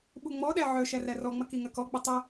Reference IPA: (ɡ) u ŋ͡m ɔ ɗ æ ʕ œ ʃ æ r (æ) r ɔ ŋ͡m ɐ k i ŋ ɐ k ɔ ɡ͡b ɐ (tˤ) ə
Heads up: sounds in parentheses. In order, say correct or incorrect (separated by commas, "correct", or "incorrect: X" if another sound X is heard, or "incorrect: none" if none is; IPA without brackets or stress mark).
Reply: incorrect: ɓ, correct, correct